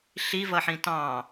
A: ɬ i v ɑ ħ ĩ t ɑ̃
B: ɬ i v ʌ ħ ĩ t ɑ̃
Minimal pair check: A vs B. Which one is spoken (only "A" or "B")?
B